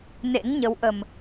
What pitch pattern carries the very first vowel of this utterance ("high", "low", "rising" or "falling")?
rising